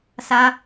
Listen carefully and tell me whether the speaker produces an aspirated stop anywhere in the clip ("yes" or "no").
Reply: no